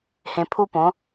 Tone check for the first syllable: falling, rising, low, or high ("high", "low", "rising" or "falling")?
low